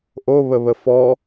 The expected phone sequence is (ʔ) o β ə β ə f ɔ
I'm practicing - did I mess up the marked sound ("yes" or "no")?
no